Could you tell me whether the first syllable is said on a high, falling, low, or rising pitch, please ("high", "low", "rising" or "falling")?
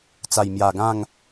low